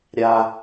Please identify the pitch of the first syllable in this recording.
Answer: low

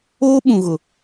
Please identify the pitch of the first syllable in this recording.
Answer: high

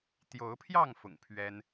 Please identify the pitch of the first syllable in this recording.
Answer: rising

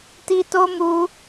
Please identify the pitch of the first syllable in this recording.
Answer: high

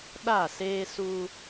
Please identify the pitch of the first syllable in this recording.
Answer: falling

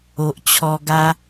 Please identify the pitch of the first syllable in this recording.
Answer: low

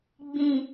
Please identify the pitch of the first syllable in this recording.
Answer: low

